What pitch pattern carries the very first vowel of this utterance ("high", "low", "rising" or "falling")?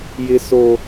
low